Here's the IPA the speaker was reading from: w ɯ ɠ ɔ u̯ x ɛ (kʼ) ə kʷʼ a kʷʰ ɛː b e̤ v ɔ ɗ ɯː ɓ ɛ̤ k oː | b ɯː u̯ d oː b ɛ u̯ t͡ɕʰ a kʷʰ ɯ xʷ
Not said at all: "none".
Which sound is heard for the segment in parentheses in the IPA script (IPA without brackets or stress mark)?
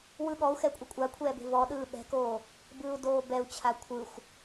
kʷʼ